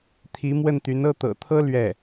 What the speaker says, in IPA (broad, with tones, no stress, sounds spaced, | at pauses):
t̪ʰ i˧˥ m w ə˥˩ n t̪ y˧˥ n ɤ˥˩ t̪ ɤ̰˨˩ t̪ʰ ɤ˥ l ɥ ɛ˥˩